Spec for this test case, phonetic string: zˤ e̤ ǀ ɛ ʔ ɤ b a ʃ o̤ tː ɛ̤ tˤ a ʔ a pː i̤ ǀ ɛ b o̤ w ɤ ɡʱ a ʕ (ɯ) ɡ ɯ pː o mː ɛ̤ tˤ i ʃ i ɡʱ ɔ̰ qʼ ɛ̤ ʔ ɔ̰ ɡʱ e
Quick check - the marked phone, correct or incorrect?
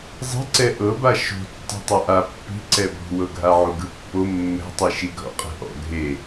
incorrect